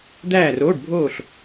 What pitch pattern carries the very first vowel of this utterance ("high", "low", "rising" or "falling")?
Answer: falling